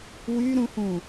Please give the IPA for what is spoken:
w y ɾ ũ h ũ

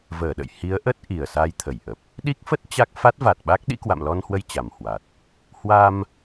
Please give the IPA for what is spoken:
v əː˧˩ ɗ ə̰˧˨ j h i˨˦ ə̯ ʔ ə˦˥ t̚ ʔ i˨˩ ə̯ s a˧ j t̪ʰ ə˧˩ j ʔ ə˨˩ p̚ | ɗ i˦˥ k̚ f ə˦˥ t̚ t͡ɕ a˦˥ k̚ f a˦˥ t̚ v a˨˩ t̚ ɓ a˦˥ k̚ ɗ ḭ˧˥ k w a̰˧˨ m l ɔ˧ n h w ə˧ j t͡ɕ a˨˩ m h w a˨˩ t̚ | h w a˧ m

